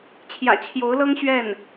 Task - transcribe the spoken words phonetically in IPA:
t͡ɕʰ j ä̰˨˩ t͡ɕʰ j o˧˥ ʊ̯ l ɤ˥ ŋ ɕ ɥ ɛ˥˩ n

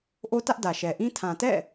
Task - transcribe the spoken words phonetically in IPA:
ʔ o˦ t ä˦ ʔ d ä˨ ʃ ɛ˨ ʔ ĩ˦ tʰ ã˨ t ɛ̰˦˨

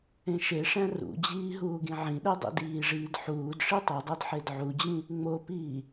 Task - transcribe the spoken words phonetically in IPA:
ẽ ʃ e ʂ æ̃ r ṵ d͡ʑ iː ɦ uː ɡ ĩ ʕ ĩ ɗ e dˤ ḭ d iː ʐ iː d ħ uː d ʂ i tˤ o dˤ o d ħ e d ʕ u d͡ʑ ĩ | ŋ͡m o p iː

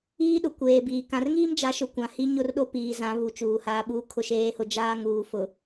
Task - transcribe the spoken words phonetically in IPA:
iː˦ ɗ ʊ˨ kʷ eː˨ b iː˨ k ã˨ r ŋ iː˦ m d͡ʒ a˨˦ ʃ ʊ˨ kʷ ã˨ h i˦ ɲ ʊ˦˨ r ɗ o˦ p iː˨ z ã˨˦ β u˨˦ t͡ʃ uː˨ h aː˦ ɓ uː˦ kʰ ʊ˦ ʃ eː˦ h ʊ˦ d͡ʒ aː˦ ŋ uː˨ f ʊ˨

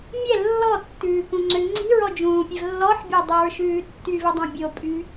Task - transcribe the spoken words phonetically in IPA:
mʲ ɛ lː ɔ tː ʉː k ũ ŋ͡ǀ ø ŋ͡ǀ i̤ ɹ ɔ d͡ʒ ũː pʲ ɛ v lː ɔ ħ bʲ e dˤ i ɹ ʃ ʉː tː y v i dˤ ũ bʲ o pʼ y

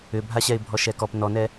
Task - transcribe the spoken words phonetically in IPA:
ʏ bʱ a ɕ ɛ ɪ̯ bʱ ɔ ʃ ɛ k ɔ p n ɔ n ɛ

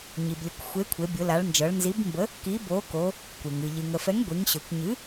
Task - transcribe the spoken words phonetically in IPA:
ɲ i˩ b lʲ ə˩˧ kʷ xʷ e˩˥ kʷʰ e˩˧ bʲ ʊ˩˧ l a˩˧ ɭ n d͡ʒ ɤ˩˧ ɭ n z i˩˥ b m b ə˩˥ | k i˩˥ b o˩˥ k o˩˧ | kʷ e˩ ŋ ɨ˩ ʎ ɨ˩ ŋ ə˩ f ɛ˩˥ ŋ ɡʷ i˩˧ ŋ ɕ ɵ˩ kʷ ɲ ɨ˩˥

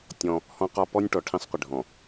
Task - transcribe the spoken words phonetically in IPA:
tʲ ɔ̃˦ | h ɔ̃˦ q ɒ˦ p ɔ˦ nʲ ʈ ɔ˨ ʈʰ ĩ˦ sˤ qʷ ɪ˨ ɖʱ ɔ̃˨

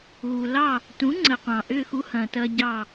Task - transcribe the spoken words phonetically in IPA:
ɣ u˩ l ɑ˥˩ | t ũ˩˥ ŋ͡ǀ ə˩ qʷ ɑ̃˩ ʔ ʏː˥˩ x u˦ h ɐ̃ː˩ t ɐ˦ ɟ ɑ˥˩

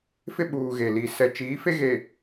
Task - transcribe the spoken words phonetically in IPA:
f ɪ˦ ɓ uː˨ ɣ e˨ l i˨ s ɛ˨ t͡ʃ iː˨˦ f e˦ ɣ e˨

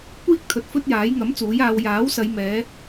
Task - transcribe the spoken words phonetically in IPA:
kʷ iː˥ k̚ t̪ʰ ɵ˨˥ t̚ f ɵ˥ t̚ j aː˨˥ j ŋ ɐ˨˥ m t͡s uː˨˥ j aː˧ w j aː˨˥ w s ɐ˨˧ j m ɛː˨˥

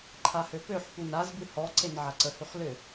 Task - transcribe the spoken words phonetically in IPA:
ǃʰ a h ø p ø ħ p u n a z b ɨ h ɔ ǀ e n ʕ a ǀ ə h ʉ χ l ʏ

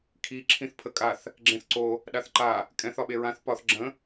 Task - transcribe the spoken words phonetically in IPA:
kʰ i ǁʰ ĩ θ pʰ ə kʼ a θ | ɡ͡ǁ ẽ θ ǀ o | ɗ a θ ǃ a | kʼ ɛ̃ θ ɒ ɓ e ɹ ã θ p ɒ θ ɡ͡ǁ ə̃

